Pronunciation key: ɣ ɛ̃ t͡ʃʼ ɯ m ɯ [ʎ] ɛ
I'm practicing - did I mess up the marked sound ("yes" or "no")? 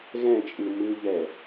no